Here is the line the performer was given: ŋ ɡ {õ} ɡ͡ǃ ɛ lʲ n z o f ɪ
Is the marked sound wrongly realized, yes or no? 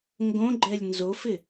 no